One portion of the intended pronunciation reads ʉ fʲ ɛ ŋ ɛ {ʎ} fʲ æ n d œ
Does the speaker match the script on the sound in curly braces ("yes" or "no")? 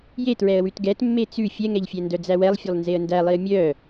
yes